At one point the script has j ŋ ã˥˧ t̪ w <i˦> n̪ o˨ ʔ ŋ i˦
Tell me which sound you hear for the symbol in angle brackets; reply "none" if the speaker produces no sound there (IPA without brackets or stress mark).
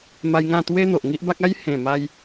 e˦